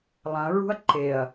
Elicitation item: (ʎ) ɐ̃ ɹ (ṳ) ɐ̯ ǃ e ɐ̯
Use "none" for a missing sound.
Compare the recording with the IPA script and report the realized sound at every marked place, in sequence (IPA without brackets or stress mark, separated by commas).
lˠ, ṳ